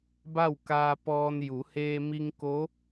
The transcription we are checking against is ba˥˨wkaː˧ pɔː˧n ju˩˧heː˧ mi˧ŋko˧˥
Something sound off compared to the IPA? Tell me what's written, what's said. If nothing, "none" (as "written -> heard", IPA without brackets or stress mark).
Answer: none